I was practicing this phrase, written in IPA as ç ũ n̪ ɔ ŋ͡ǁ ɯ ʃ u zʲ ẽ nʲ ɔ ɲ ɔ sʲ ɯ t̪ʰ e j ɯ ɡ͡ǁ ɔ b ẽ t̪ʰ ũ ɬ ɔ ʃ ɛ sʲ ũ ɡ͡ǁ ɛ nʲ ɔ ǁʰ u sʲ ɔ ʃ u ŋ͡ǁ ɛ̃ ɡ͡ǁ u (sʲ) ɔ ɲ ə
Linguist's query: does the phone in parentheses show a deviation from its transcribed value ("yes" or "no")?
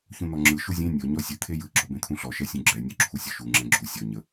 no